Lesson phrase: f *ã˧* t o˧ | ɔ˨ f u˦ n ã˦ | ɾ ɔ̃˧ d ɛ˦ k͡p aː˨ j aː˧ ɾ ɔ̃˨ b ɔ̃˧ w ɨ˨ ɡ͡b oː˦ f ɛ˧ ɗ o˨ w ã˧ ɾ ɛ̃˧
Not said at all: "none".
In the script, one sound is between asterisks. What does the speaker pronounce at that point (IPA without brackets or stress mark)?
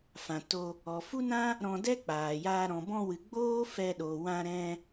ã˨